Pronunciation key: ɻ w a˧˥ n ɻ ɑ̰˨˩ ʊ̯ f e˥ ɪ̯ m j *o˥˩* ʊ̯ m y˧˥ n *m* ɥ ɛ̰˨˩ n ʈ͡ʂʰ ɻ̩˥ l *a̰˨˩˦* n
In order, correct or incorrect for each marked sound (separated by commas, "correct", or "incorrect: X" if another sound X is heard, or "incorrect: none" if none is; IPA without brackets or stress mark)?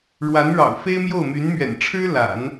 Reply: correct, correct, correct